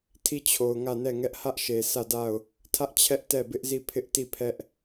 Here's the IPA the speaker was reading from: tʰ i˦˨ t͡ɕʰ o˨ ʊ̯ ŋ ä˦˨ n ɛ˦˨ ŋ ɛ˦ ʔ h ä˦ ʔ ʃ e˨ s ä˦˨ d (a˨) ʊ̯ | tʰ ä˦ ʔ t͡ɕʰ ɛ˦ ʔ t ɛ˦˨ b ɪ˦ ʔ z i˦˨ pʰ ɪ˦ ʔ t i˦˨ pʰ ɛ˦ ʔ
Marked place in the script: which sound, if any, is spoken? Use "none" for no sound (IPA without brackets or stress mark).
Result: a˦˨